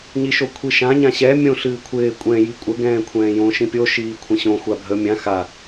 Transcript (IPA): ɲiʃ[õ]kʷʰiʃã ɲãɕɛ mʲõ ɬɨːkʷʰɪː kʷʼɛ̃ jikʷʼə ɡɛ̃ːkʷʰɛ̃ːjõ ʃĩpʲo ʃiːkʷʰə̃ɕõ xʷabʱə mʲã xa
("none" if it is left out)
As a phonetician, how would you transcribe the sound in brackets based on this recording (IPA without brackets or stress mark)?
o